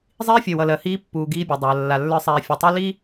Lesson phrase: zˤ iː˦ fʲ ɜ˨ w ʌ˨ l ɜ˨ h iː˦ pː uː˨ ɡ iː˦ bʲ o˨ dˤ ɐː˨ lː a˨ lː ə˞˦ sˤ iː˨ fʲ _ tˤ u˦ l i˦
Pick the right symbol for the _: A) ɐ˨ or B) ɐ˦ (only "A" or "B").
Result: A